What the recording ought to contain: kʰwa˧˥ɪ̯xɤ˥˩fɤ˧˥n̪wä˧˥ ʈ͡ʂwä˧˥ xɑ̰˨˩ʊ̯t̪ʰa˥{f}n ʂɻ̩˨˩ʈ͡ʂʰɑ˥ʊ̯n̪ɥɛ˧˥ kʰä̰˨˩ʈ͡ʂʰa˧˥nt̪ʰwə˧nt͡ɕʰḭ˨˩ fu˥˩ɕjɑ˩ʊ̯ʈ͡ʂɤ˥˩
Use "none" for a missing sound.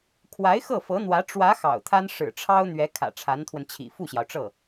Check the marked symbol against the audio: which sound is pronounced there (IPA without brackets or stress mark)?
none